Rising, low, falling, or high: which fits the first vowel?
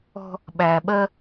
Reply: high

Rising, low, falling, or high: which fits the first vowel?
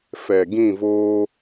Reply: low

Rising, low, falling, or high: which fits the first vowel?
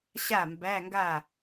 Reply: falling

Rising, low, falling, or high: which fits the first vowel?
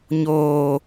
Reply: low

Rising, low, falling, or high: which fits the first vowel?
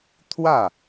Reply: falling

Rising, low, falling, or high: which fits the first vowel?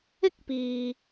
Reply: high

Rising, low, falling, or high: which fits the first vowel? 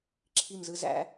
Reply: falling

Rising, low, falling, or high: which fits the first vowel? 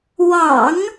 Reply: low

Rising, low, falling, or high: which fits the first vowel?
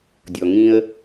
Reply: low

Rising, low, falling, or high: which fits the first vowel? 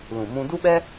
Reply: low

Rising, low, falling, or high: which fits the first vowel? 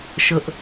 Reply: high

